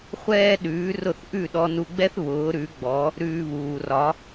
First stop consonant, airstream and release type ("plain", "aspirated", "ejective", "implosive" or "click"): implosive